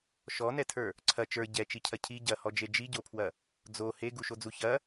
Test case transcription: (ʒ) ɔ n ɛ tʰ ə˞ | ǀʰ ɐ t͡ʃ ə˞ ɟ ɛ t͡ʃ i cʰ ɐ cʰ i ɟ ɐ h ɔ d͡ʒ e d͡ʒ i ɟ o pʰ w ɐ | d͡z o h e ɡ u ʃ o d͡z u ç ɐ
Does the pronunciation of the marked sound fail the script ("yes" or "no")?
yes